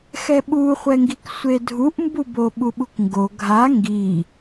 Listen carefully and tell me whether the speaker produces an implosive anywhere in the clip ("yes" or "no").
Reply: yes